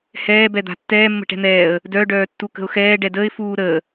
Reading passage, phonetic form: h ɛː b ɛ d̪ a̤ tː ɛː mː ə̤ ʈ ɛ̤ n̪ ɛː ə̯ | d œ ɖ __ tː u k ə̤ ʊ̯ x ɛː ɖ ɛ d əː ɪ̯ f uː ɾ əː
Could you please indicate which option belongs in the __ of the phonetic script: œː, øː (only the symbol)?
œː